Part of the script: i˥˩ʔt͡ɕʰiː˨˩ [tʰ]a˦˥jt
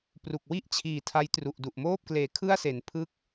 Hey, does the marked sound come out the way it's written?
yes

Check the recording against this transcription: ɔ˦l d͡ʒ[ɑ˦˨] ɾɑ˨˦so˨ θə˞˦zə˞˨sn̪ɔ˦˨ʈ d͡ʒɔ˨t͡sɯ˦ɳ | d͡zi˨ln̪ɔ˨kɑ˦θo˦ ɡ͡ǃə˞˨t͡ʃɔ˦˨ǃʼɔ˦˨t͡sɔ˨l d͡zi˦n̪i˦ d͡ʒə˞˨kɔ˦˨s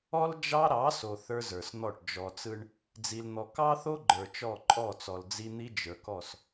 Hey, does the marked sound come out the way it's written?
no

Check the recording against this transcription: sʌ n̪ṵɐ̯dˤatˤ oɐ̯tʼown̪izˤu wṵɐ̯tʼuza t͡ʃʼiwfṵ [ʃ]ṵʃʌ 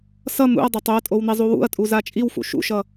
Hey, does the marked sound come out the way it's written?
yes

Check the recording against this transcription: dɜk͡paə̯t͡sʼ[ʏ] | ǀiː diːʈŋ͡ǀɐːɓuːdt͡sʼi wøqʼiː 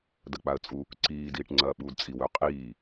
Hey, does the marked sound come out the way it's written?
no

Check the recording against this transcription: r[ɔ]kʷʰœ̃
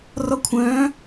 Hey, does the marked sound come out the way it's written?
yes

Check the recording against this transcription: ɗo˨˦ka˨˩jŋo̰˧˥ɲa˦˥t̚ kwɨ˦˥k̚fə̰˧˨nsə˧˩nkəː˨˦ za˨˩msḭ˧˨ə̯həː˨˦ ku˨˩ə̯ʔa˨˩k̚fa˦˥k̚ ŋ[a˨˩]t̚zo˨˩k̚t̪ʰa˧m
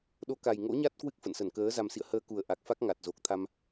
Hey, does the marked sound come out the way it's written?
yes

